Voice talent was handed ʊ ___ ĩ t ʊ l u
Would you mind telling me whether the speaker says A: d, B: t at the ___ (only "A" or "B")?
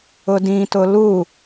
A